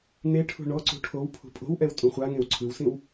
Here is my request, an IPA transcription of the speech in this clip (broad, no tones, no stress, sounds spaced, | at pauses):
n e ʈʰ ṳ ɳ ɔ ǀ ṳ ʈʰ o w pʰ ṳ pʼ o̤ w ʔ ɛ w tʼ ũ χʷ a ŋ ẽ w ǀʰ ɯ w s ĩ w